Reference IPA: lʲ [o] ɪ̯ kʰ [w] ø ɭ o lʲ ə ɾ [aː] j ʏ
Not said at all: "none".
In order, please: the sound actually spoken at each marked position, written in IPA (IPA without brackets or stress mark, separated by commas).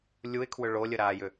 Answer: u, w, aː